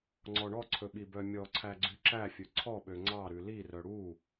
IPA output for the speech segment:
ŋ͡ǀ ɔ ɳ ɔ ǀʰ ɵ ɓ i b œ mʲ ɔ ǀʰ æ ɡ͡ǀ y ǁ æ fʲ ɵ ǀʰ ɔ ɓ ø ŋ͡ǀ ɑ ɾ ʉ l i r œ ɽ u

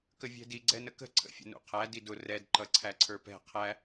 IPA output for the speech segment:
k ə vʲ ɛ̤ d i ɡ͡ǀ ɛ n ə k ə̤ ǀʰ ə̰ fʲ ə̰ n ṵ qʰ æ d i d ʊ r ɛ d ǃ ʌ ǀʰ æ ǀʰ ə˞ p ɛ̤ qʰ æ

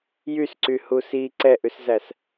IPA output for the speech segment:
j y s ǀ y h u s i ǀ ɛ ʔ ʉ s z æ s

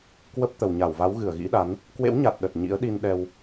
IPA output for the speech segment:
k w ə˦˥ p̚ t̪ ə˨˩ w ɲ a˧˩ w v a˨˦ w ɣ ɨ˧˩ ə̯ ɣ ḭ˧˥ ɗ a˨˦ n | k w ḛ˧˥ w ɲ a˨˩ t̚ ɗ ə˨˩ t̚ ɲ ḭ˧˥ ə̯ ɗ i˧ n ɗ ɛ˧ w

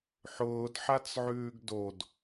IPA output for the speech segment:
ħ ʊː d ħ a t͡s ʕ ʉː ɡ d o d

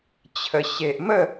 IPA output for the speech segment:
t͡ɕʰ ə˨˩ ɕ e˨ ʔ m ə˥˧

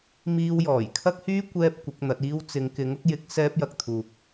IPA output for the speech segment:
m iː˧ w j ɔː˨˩ j kʰ ɐ˥ k̚ h yː˥ kʷ ɛː˥ p̚ kʷ ɪ˨˥ k̚ n̪ ɐ˨˥ t̚ iː˧ w t͡s ɪ˨˧ ŋ k ɪ˨˥ ŋ ʊ˧ k̚ j ɪ˨˥ k̚ s ɛː˥ p̚ j ɐ˧ k̚ t̪ʰ uː˨ k̚

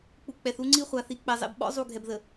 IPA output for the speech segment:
k͡p u˨ k͡p ɛ˨ θ u˦ ŋ͡ǀ i˦ χʷ a˨ θ i˨ k͡p ɛ˨ zˤ ḛ˨ b ɓ ɔ̰˦ zˤ u˦˨ ɡʱ ɛ˨ b ð ə˨

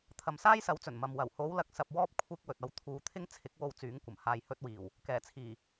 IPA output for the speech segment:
t̪ʰ ɐ˨ m s aː˥ j s ɐ˨˥ w t͡s ɵ˨˩ n m ɐ˨ m w ɐ˨˩ w h o˨˧ w l ɐ˨ k̚ s ɐ˨ p̚ w ɔː˧ p̚ kʷʰ ɪ˧ k̚ w ɵ˨ t̚ ɐ˥ w t̪ʰ uː˧ t̪ʰ ɪ˥ ŋ t͡sʰ ɪ˨˥ k̚ w o˧ w t͡s yː˨˥ ŋ kʷ ɐ˨˩ m h aː˧ j h ɵ˥ t̚ w iː˨˩ w | k ɛː˨˩ t͡sʰ iː˨˩

